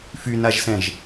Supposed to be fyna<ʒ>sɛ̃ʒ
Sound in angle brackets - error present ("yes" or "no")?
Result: no